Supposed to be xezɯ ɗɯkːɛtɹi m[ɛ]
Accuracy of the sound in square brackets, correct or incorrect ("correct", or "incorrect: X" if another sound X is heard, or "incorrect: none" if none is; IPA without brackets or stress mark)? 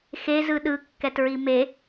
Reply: incorrect: e